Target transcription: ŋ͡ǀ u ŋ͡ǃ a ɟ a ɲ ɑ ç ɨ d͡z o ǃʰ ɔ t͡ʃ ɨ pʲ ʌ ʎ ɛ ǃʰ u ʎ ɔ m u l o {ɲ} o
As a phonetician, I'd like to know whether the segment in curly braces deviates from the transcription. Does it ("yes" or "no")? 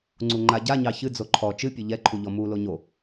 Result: no